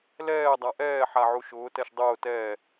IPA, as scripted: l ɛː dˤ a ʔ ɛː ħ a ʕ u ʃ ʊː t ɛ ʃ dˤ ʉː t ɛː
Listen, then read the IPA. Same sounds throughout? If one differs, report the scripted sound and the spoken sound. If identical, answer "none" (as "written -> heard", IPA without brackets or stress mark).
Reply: ʉː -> ʊː